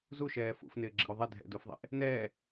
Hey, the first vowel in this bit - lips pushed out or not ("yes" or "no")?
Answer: yes